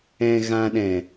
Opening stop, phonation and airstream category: implosive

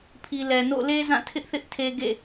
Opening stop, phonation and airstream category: aspirated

